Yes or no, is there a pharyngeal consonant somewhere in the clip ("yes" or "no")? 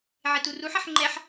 yes